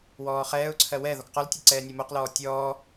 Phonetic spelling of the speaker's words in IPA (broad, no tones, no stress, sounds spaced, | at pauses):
w ɔː χ ɛː ʊ̯ ǀʰ ɜ w ɛ ð ɔ k q ɔ l tʲ ɛ ǀ ɛː nʲ ɜ m o q l ɔː tʲ ɔː